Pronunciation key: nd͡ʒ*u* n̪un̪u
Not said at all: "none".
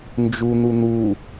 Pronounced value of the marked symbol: u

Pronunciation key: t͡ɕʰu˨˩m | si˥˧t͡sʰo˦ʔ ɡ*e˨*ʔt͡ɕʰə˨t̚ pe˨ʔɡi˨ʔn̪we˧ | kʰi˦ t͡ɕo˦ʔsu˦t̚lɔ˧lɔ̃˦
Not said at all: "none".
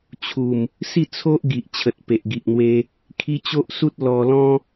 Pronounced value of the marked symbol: i˨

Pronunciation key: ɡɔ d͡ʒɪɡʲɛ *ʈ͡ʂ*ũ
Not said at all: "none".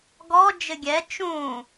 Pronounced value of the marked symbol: t͡ʃ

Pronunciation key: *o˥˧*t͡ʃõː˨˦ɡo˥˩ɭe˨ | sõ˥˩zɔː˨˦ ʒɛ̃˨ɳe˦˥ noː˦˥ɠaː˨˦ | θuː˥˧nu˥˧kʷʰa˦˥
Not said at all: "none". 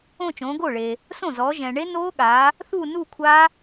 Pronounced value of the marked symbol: õ˥˧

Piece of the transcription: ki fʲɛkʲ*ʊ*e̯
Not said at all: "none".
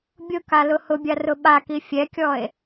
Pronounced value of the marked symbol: ɔ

